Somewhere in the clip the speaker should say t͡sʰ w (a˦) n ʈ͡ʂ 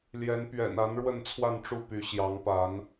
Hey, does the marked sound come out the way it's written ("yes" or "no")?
no